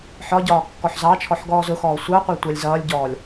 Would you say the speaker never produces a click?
yes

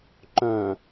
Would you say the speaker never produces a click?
no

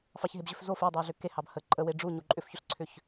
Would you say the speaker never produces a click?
no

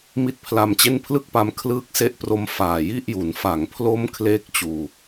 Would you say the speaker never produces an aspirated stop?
no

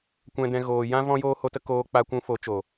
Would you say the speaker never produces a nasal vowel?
no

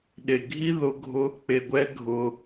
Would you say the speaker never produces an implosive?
no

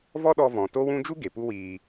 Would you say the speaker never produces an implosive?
no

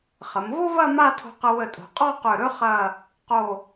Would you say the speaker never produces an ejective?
no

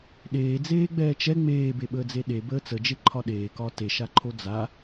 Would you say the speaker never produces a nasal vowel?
yes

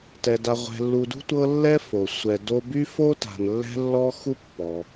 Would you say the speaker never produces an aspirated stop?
yes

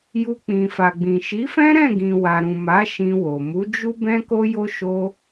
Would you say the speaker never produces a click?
yes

